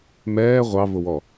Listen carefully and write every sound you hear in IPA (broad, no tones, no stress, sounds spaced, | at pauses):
m ɛː ʁʷ ɑ v ʊ w ɔ